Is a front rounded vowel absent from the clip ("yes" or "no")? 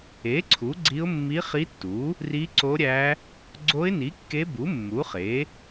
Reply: yes